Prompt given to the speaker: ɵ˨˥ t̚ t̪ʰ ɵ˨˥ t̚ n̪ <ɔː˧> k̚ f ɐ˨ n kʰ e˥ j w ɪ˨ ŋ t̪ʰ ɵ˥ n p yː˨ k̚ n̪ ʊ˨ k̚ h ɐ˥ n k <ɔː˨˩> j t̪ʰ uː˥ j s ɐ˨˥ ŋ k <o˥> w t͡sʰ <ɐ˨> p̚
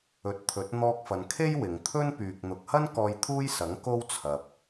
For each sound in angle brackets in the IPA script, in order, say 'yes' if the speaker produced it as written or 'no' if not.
yes, no, yes, yes

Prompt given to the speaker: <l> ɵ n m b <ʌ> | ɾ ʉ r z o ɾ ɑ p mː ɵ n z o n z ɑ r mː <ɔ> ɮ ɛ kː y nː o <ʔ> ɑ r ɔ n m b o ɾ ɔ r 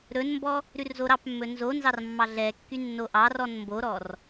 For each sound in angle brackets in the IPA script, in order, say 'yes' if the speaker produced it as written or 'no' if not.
no, no, no, yes

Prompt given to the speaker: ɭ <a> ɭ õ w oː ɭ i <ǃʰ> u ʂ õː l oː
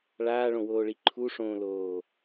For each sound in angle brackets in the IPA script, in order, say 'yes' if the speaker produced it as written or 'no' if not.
no, yes

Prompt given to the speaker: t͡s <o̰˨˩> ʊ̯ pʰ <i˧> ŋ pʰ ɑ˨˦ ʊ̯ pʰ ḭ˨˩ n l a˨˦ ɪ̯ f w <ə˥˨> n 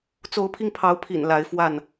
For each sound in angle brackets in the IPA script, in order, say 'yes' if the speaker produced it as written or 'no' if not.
no, yes, no

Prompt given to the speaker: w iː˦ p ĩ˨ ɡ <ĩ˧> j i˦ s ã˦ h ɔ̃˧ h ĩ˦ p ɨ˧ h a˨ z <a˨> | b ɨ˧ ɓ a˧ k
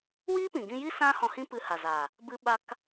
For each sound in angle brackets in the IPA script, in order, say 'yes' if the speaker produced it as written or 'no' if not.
yes, yes

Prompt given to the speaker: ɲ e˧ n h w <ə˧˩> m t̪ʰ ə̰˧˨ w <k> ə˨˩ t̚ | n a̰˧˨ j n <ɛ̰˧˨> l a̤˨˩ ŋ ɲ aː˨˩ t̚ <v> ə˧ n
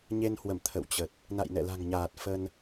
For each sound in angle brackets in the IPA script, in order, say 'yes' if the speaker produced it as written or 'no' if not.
yes, no, yes, no

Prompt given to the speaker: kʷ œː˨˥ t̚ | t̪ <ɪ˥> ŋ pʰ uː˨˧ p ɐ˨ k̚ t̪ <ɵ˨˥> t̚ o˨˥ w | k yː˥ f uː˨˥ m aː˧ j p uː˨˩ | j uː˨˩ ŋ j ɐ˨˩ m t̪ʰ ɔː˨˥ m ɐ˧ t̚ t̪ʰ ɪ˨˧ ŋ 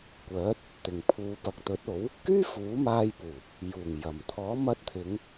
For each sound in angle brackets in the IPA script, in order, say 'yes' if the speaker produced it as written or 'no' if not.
no, yes

